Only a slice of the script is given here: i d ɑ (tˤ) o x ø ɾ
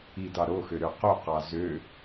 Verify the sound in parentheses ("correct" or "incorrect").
incorrect